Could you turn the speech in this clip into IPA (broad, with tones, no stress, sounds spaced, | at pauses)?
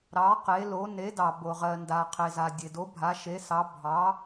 ɾ ɑ˩˥ q e˩˥ l o˩˥ n e˩˥ d ɑ˩ b o˩ ʁ ɜ˩ n d a˩ qʰ e˩ z a˩ dʲ e˩ d o˩˥ bʱ a˩˥ ʃ e˩˥ s ɑ˩˥ bʱ ɑ˩˥